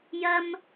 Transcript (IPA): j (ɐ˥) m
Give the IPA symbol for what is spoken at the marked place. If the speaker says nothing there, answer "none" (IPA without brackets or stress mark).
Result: ɐ˥